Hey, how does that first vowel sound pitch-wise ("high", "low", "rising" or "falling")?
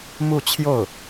falling